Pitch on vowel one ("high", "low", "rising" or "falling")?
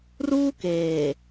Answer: high